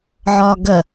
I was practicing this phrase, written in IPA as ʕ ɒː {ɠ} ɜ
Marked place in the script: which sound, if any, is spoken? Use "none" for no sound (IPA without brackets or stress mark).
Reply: ɡ